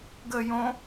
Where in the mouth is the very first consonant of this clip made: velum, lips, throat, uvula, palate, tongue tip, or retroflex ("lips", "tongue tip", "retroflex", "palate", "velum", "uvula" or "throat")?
velum